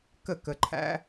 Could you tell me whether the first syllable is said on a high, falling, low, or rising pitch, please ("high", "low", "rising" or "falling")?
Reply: falling